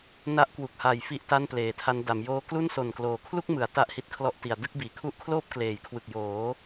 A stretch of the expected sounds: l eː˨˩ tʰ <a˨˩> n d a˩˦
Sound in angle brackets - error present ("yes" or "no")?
yes